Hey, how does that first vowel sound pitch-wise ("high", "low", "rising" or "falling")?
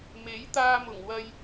rising